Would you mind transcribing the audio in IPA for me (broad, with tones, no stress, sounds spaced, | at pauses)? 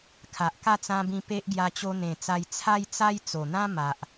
kʰ a˨ ʔ k a˥˧ t͡s ã˧ b ĩ˧ p e˦ ʔ ɡ j a˧ t͡ɕ o˧ n̪ ẽ˨˩ t͡s a˧ j t͡sʰ a˦ j t͡s a˦ j t͡s o˨˩ n̪ ã˦ m a˨ ʔ